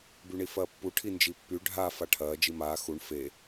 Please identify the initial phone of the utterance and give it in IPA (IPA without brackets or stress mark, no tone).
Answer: b